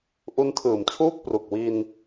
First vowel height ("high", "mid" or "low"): high